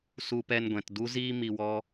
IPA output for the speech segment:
su˧pɛ˧nɡʷɛ̃˨t du˦ ziː˦ mi˧wɔ˦

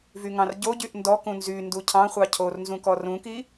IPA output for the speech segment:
vyŋɑ̃rɟoɟyʔ ndɔkũ nzy nducʰɑ̃χʷɑ cʰornzũ kɔrũki

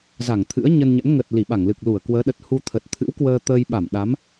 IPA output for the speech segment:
za˧˩ŋt̪ʰɨ̰˧˥ə̯ɲə˧nɲə̰˧˥n ŋə˨˩t̚ li˧˩ɓa˧˩ŋlɨ˨˩k̚ lu˧˩ə̯kwəː˨˦ɗə˨˩t̚ hu˧t̪ʰə˨˩t̚ t̪ʰɨ̰˧˥wkwəː˧ t̪əː˧jɓa˧˩mɗa˨˦m

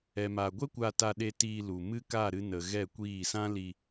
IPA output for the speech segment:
ɛ˨ma˨ɡʷɛ˦kʷa˧ ta˧ɗe˧ tiː˧lu˨mɨ˦ ka˦˨ ɾɨ˧nə˨ ɣɛ˦˨kʷiː˦˨ sã˦li˧

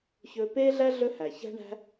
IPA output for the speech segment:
çɵː˧peː˦ɮæ˦ ɮɵ˦hæ˨ çæ̤˦ɳæ̤˦

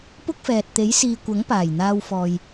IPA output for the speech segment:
pʊ˥k̚fɛː˨t̚ t̪e˨˥jsiː˨ kʷɐ˨˥ŋpaː˨˩j n̪aː˧wfɔː˨j

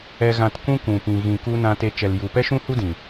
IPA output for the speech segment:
ɛ˨ɣã˨t kũ˦kũ˨pĩ˨ ɣĩ˨ku˧ nã˧te˧ t͡ʃɛ˨lju˨pɛ˦ ʃũ˦hu˦dĩ˨

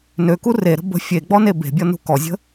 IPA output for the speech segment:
nøku reɾə̤ bə̤ fʲeɡ͡bɔne be̤bʲɔnṳ kɔzʲə̤

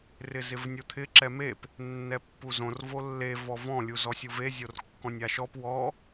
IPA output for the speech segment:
rɪzɪvnʲot̪ʰɪ ǁɛmep | nːɛpːuzõr volːe vɔvɔ̃ lʲuzɔsʲuve zʲorkːɔ̃nʲaʃɔp wɔ

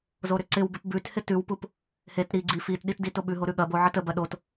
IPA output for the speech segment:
zoɾʏǀɪwbɪp bʉt hɪtʉwpup | het ɾi ɡ͡ǀi fitɗit ditoɓʉɦo ɾʉɠɐbo ʕətəbɐ ɗot

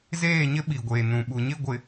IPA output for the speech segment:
zeː˦˨ɲɪ˦ ɓi˨ɡʷeː˨ nũ˨ɓu˨ ɲɪ˦˨ ɡʷɪ˨

